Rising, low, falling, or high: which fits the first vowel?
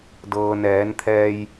low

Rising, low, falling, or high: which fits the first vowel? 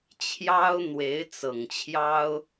high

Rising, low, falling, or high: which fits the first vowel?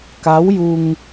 rising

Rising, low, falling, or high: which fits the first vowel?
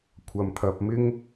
low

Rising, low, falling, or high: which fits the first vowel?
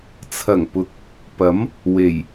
low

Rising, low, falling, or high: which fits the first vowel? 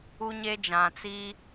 high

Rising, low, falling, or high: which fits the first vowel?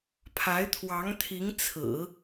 rising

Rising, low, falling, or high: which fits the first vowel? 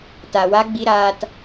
low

